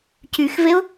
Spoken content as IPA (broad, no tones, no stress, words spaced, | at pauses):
cyxveʊ̯